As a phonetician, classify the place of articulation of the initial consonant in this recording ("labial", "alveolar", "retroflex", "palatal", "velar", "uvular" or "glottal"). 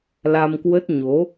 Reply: alveolar